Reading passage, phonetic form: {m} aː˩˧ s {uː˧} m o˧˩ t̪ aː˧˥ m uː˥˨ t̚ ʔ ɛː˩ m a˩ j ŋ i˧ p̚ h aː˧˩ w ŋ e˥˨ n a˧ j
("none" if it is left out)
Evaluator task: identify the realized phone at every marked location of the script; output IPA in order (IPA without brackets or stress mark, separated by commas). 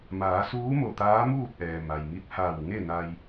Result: m, uː˧˥